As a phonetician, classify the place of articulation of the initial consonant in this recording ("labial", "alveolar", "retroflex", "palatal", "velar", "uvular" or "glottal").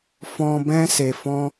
labial